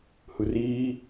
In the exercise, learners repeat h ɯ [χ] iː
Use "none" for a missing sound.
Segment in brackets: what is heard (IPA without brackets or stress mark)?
r